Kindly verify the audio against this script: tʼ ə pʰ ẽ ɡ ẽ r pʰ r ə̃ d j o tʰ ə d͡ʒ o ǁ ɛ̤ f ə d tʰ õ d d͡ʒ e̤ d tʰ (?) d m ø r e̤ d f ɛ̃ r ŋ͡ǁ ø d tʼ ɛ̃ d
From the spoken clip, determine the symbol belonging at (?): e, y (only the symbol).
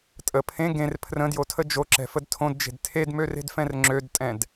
e